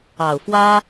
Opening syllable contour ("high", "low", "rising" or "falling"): low